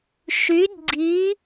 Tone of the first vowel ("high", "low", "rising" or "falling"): rising